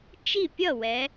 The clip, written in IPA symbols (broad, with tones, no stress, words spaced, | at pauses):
t͡ʃi˥˩pʲʌ˥˩wɛ˩˧